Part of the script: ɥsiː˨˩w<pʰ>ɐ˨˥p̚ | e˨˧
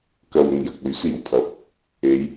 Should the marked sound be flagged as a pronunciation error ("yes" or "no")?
no